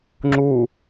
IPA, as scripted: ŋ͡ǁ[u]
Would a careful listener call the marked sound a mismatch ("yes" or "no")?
no